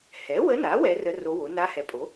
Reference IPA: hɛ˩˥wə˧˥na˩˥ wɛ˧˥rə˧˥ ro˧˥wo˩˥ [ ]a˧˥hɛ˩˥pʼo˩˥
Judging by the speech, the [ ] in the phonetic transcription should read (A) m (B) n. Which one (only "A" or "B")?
B